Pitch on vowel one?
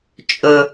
low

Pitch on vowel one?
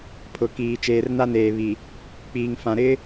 low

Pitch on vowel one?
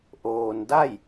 low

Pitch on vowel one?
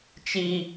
high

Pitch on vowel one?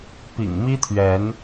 low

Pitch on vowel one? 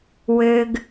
low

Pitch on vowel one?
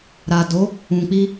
low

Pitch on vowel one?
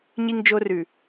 high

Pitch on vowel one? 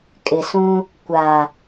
low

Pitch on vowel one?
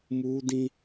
high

